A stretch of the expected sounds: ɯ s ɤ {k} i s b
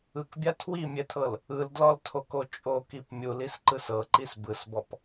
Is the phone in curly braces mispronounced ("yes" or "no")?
yes